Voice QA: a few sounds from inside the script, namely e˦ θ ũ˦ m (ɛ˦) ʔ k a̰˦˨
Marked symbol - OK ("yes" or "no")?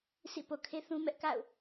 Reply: yes